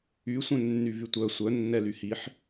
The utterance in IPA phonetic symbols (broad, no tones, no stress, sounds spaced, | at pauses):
y sʷ œ̃ nː y v y tʷ œ sʷ œ nː ɛ l y h i ħ